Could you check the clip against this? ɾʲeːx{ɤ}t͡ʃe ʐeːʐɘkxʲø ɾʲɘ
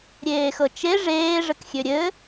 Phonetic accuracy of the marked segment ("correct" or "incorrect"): correct